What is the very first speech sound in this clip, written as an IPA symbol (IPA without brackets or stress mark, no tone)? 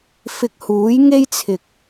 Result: f